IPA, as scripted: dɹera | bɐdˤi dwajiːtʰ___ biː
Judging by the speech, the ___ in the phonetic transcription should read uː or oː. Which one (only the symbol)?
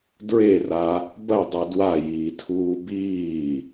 uː